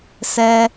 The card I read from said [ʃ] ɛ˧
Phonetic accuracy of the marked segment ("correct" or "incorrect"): incorrect